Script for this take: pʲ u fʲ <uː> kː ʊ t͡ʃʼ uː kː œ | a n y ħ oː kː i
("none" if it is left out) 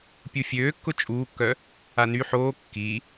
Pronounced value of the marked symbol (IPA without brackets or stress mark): øː